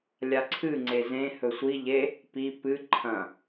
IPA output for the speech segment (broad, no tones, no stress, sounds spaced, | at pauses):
lʲ a ǀʰ ɨ ŋ͡ǀ e z ẽ h ɵ sʷ i ʎ e | p i p ɨ ǃʰ ɐ̃